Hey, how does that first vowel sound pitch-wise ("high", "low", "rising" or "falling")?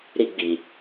high